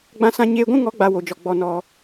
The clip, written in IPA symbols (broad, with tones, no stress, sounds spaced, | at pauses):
ɡ͡b ã˦ s ã˦ ɲ eː˧ ɡʷ ũ˦ ŋ ɔ˨˦ ɡ͡b a˧ w o˨ d͡ʒ ɔ˨ ɡ͡b ɔ˧ n ɔ˧